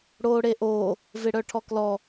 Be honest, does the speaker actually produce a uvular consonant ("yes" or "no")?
no